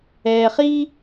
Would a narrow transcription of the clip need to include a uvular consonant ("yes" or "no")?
yes